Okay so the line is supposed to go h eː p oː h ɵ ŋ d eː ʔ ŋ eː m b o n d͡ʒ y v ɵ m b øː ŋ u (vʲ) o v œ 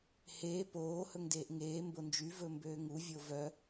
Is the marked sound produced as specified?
yes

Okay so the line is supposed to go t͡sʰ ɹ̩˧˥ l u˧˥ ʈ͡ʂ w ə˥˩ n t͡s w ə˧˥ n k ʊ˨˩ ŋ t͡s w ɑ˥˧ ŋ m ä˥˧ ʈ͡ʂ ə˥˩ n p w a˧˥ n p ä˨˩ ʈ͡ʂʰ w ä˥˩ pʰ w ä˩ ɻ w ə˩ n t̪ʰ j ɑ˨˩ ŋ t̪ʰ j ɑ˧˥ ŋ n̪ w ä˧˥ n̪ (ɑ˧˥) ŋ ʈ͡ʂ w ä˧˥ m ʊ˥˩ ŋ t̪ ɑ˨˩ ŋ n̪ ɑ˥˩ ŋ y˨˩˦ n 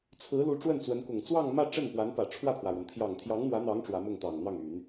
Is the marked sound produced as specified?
yes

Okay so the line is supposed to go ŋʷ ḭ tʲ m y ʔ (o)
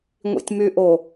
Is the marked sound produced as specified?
yes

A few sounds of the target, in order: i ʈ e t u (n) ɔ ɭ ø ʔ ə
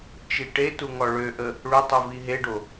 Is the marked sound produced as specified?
no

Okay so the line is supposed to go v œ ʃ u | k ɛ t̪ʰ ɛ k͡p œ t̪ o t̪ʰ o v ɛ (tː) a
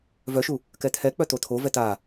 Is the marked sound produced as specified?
no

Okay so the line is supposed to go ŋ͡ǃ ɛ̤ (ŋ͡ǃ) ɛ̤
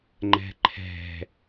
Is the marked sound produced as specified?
no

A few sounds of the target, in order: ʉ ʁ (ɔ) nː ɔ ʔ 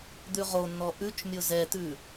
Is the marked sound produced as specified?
no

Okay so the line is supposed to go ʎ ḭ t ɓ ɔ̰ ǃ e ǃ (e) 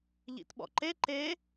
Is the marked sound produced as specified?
yes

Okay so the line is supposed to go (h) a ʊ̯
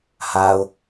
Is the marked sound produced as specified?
yes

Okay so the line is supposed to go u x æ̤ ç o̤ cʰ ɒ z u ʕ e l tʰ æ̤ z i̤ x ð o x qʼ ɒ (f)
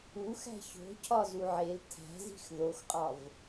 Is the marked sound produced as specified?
no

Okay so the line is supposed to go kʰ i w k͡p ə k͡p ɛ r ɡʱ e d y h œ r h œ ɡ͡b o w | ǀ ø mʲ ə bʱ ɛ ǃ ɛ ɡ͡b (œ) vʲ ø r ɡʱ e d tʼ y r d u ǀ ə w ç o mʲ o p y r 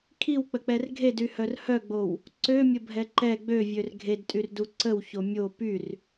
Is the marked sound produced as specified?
no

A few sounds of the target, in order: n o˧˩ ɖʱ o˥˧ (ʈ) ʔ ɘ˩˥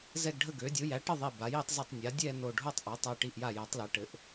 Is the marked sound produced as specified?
no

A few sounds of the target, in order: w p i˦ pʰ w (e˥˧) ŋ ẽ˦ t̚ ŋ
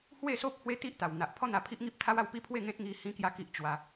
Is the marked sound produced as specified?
yes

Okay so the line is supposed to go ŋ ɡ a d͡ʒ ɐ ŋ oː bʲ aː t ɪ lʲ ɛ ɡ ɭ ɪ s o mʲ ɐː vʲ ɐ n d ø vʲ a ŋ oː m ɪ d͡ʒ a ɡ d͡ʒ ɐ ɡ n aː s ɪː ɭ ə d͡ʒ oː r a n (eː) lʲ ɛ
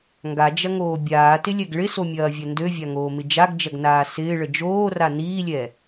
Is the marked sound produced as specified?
no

